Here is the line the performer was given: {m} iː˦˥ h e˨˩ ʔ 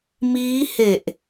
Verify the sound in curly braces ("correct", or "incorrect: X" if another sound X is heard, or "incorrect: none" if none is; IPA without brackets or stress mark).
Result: correct